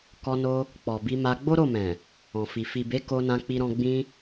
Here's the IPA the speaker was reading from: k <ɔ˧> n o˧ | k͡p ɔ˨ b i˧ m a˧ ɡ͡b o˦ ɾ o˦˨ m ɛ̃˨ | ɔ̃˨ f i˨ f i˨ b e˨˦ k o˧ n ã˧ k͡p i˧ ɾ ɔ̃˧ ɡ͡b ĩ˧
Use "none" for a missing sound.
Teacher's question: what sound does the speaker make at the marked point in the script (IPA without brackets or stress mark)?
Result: ɔ˧